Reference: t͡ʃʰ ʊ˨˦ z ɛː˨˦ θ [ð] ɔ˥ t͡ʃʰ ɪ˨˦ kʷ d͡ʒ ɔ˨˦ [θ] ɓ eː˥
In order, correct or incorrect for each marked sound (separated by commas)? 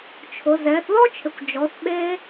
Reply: correct, correct